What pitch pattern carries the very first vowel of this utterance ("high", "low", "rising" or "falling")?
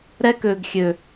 high